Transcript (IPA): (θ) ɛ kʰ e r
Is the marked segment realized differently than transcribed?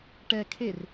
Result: yes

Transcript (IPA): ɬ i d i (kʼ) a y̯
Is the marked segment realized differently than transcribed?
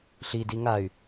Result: yes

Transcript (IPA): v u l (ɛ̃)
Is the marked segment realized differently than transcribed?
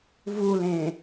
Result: yes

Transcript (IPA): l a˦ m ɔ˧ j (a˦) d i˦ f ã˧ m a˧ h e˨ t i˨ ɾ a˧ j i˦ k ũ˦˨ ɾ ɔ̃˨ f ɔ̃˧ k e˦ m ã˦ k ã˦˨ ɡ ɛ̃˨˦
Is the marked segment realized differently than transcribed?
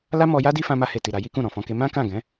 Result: no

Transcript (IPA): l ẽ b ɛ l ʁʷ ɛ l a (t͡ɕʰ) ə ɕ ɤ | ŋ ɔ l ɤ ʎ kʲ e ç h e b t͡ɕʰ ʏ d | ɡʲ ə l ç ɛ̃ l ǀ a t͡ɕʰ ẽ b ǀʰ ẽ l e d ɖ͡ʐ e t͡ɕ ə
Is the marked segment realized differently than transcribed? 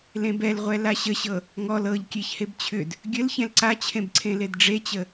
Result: yes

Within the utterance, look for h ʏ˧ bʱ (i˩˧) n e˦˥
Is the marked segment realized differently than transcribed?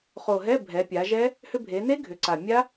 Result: yes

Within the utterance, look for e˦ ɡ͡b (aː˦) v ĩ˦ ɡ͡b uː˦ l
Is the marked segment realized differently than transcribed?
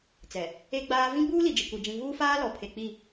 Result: no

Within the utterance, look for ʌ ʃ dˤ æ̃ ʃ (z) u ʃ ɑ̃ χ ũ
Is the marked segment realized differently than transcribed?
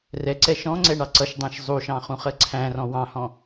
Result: yes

